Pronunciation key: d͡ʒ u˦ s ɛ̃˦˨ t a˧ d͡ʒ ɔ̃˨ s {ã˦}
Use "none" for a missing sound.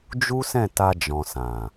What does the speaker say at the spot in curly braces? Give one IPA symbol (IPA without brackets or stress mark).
ã˨